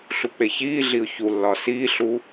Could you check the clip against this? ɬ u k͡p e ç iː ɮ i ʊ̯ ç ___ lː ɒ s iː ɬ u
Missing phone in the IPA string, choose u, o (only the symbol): u